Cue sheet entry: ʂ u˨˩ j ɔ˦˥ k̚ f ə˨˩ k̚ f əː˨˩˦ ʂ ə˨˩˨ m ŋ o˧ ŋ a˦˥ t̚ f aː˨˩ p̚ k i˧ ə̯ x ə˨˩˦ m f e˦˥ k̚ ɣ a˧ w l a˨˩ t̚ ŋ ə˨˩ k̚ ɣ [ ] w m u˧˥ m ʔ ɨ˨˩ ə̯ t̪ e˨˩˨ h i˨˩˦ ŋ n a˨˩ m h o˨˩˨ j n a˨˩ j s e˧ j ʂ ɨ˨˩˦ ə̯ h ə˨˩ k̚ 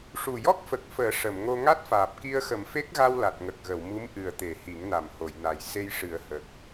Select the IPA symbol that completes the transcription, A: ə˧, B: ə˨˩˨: B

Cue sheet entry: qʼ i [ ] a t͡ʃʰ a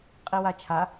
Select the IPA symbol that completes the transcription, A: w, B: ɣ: A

